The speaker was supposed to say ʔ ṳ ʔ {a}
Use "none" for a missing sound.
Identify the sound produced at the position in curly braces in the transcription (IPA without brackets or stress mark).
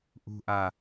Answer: a